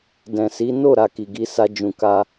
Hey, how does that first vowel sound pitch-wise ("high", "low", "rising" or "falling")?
low